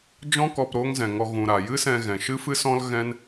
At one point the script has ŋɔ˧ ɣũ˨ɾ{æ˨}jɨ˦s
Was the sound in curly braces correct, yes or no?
no